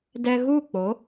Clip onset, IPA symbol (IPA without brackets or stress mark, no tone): d